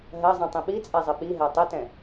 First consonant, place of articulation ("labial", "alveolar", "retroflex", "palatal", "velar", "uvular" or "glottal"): glottal